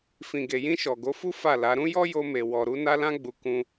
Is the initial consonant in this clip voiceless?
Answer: yes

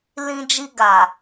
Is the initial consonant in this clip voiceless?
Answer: no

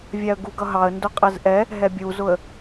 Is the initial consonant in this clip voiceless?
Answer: no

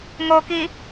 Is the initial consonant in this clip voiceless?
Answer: no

